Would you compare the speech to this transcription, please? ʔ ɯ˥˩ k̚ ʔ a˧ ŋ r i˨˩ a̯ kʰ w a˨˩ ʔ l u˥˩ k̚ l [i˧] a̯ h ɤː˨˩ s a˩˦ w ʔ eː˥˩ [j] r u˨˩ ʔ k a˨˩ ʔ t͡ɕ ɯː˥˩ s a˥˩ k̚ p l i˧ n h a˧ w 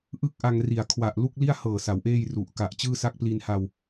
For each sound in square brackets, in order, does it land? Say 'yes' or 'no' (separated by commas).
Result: no, yes